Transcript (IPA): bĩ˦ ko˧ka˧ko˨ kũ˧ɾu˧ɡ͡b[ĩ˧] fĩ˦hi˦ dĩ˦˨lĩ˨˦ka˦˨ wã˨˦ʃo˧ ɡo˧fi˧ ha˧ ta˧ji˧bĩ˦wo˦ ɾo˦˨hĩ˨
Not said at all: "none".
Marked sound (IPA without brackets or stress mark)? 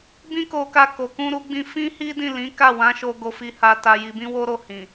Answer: ĩ˧